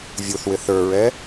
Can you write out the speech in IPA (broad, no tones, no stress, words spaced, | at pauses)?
vʲuθwɪ θə˞ɹɛ